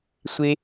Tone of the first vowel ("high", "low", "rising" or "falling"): low